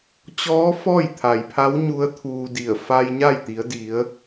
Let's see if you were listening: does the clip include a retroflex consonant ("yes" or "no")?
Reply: no